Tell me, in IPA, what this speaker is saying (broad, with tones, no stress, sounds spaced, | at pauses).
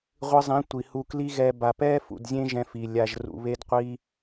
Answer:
ʁʷ ɨ˧ zˤ ĩ˨˦ tʷ i˨ h u˧ k l i˦ ɣ ɛ˧ b a˨ p ɛ˦ f ṵ˨ d zʲ ẽ˦ ʒ ɛ̃˧ f i˨ lʲ a˨ ʒ r ṵ˨ β e˧ d qʷ i˧